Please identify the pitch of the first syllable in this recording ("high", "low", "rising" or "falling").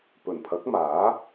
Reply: low